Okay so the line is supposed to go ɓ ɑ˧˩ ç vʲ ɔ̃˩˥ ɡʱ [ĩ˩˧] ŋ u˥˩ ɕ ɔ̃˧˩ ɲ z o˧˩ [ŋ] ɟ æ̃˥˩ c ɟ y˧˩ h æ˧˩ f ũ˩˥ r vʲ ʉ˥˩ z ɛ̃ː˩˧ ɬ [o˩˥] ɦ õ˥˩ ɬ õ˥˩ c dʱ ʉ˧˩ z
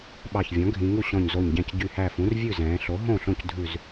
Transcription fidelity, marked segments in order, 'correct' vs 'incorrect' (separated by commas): correct, incorrect, correct